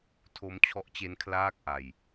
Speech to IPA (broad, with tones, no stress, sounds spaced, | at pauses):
tʰ o˦˥ m t͡ɕʰ ɔ˦˥ ʔ t͡ɕ e˦˥ n kʰ l aː˥˩ k̚ ʔ a˧ j